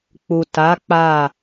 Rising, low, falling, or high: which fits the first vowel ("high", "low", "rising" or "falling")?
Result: low